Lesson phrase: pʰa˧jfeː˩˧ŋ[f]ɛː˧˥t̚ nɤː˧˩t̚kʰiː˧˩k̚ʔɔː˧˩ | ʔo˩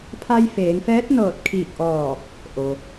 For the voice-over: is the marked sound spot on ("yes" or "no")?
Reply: yes